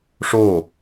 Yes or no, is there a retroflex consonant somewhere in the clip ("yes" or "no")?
yes